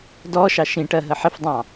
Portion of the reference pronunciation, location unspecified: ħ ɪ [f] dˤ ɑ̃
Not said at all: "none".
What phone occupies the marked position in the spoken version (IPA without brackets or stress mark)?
f